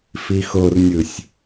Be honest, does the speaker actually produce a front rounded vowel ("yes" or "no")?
no